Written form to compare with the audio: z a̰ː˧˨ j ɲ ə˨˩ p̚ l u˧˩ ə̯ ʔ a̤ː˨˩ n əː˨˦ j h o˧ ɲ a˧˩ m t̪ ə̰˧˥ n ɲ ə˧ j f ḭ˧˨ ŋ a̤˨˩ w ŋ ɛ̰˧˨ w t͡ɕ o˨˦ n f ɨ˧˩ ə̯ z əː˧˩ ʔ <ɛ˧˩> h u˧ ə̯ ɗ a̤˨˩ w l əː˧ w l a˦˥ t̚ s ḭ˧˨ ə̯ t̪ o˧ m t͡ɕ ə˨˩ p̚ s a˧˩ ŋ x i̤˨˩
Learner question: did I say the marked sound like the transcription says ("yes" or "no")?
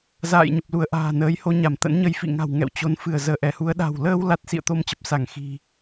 yes